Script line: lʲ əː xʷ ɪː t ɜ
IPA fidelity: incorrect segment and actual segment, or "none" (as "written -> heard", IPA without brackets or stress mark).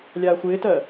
əː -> aː